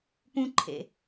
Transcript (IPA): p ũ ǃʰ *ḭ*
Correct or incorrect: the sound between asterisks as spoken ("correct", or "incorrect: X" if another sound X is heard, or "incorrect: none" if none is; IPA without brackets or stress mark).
incorrect: ḛ